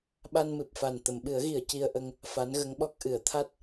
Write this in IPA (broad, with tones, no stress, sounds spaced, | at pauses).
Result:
ɓ a˧ n m ɨ˨˩ p̚ f a˨˩ n t̪ ə˨˩˨ m ɓ ɨ˨˩˦ ə̯ ɣ i˨˩˨ ə̯ c i˧ ə̯ ʔ ə˧ ŋ | f a˧˥ n ɣ ə˧˥ ŋ ɓ ɔ˦˥ k̚ ʔ ɨ˨˩˨ ə̯ t̪ʰ a˦˥ t̚